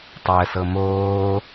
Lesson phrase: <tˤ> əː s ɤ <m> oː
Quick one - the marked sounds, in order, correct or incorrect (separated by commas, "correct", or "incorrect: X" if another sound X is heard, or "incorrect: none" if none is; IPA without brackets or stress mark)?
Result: correct, correct